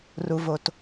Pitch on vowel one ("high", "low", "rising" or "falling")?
low